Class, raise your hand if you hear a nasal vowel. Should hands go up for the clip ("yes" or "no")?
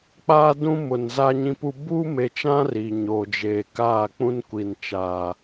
yes